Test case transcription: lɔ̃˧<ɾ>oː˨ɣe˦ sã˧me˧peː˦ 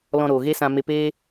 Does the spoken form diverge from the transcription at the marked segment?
no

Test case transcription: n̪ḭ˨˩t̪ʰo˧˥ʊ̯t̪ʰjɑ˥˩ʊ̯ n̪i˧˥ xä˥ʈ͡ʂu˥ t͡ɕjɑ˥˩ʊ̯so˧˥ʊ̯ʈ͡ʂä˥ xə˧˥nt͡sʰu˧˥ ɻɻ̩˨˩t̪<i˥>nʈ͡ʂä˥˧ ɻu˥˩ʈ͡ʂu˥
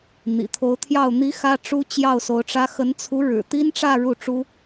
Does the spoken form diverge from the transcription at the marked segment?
no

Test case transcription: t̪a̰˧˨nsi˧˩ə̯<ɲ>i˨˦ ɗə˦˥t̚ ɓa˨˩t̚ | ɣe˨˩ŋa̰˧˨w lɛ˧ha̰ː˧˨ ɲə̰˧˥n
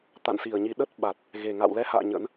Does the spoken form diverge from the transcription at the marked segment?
no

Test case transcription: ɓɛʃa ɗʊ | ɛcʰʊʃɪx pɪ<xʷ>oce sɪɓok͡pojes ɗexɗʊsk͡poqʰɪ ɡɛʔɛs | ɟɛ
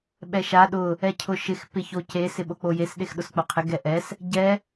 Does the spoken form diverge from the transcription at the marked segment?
yes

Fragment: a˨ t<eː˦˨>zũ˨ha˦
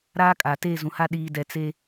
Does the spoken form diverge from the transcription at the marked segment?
no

